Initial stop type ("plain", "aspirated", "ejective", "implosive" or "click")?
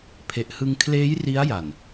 aspirated